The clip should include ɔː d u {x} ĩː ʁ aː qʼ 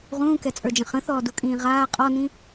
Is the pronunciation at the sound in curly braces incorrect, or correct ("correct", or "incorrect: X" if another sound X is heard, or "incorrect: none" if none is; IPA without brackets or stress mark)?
incorrect: kʼ